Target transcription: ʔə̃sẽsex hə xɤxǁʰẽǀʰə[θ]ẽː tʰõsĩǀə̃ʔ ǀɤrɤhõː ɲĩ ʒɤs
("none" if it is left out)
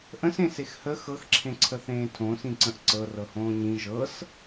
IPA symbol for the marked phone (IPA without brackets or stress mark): θ